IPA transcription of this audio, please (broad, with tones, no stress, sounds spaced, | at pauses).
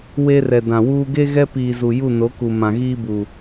w e˦ r ɛ˨ d ã˨ w uː˦ ɡ e˦ ɣ ɛ˦ p iː˨ z u˨ j u˦˨ n o˨˦ k u˨ m ã˨ ɣ iː˦ b uː˨